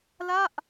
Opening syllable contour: falling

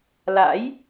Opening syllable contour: rising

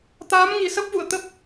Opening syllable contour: rising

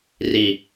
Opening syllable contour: low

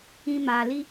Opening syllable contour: high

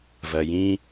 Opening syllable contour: low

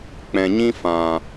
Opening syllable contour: low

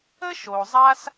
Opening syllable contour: high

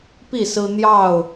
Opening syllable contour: falling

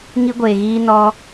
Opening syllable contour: high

